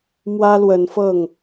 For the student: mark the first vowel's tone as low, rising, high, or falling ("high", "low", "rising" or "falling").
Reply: high